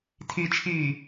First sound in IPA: tʰ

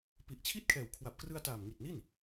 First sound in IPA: p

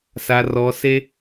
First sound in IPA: s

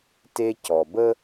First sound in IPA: t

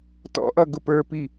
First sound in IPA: t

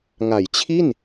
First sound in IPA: ŋ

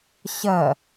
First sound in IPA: ɕ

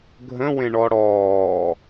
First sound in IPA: ɡʱ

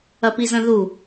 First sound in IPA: ɐ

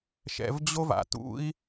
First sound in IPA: ʃ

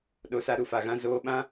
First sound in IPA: ɗ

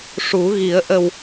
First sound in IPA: ʂ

